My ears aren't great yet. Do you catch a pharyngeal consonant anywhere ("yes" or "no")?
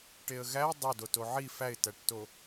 yes